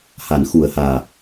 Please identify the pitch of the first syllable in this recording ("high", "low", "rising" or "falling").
low